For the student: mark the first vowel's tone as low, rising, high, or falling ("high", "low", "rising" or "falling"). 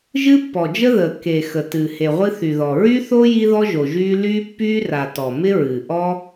high